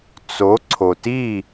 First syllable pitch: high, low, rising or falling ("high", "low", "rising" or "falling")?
rising